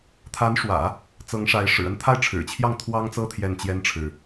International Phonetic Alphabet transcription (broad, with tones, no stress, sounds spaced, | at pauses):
t̪ʰ a˧˥ n ʂ w ä̰˨˩˦ | t͡s ɤ˧˥ ŋ ʂ a˧˥ ɪ̯ ʂ ɻ̩˨˩ ə˥˧ n t̪ʰ a˥˩ ɪ̯ ʈ͡ʂʰ ɻ̩˨˩ t͡ɕʰ j ɑ˥˩ ŋ t̪ʰ w ɑ˥ ŋ t͡s ɤ˥˧ t̪ʰ j ɛ˥˩ n t͡ɕ j ɛ˥ n ʈ͡ʂʰ ɻ̩˨